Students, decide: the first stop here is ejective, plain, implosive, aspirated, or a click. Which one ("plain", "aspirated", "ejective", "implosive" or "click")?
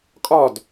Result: ejective